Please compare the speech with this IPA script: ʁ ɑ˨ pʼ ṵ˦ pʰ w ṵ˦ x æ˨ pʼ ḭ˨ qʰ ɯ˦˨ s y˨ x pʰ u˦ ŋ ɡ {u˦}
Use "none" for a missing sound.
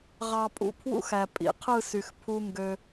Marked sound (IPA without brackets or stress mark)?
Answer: ø˦